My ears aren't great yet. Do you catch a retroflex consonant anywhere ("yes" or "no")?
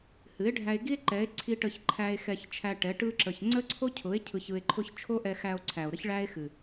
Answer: yes